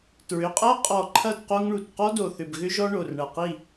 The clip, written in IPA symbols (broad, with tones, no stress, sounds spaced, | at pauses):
t ɹ ʏ˩˧˩ qʼ æ˥ qʼ ɔ˧˩ ǃʰ ɐ˥˩ d q o˥ ŋ ɳ u˧˩ t q ɔ˥ d o˧˩ θ ʏ˧˩ b ɣ ʏ˥ ʒ ɔ˥ ɳ o˩˧˩ r ɳ ɐ˧˩ q i˥˩